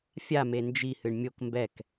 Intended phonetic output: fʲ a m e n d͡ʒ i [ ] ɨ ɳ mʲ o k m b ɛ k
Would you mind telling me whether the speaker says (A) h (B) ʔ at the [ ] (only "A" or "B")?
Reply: A